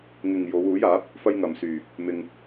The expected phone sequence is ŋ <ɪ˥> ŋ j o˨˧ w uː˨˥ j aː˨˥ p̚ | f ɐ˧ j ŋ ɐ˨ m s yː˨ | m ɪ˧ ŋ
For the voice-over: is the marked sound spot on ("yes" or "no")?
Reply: no